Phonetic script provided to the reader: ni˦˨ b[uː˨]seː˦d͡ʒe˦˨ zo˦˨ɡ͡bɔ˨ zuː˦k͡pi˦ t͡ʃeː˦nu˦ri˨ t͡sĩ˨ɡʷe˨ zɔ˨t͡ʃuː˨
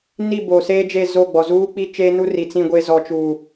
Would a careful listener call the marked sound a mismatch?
yes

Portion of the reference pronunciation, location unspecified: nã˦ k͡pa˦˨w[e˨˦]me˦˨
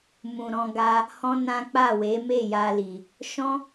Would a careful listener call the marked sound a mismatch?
no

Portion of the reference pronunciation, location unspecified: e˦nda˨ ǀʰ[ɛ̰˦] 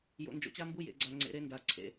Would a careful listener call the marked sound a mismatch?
yes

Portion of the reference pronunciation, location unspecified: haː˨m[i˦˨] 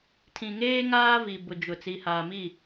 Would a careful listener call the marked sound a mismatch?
no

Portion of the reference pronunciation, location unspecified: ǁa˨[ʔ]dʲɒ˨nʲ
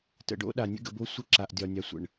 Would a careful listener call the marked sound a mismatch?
no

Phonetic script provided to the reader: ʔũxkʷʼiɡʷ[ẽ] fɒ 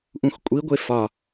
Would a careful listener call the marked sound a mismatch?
yes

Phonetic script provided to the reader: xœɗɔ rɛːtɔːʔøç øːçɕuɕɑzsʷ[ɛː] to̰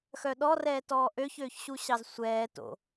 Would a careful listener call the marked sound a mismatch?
no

